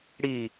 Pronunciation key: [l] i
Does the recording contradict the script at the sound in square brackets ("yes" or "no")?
yes